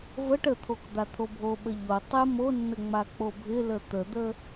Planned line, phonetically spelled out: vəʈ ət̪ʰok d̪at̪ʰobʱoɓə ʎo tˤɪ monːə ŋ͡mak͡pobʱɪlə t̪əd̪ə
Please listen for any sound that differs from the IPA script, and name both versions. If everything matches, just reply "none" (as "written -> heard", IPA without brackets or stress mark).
none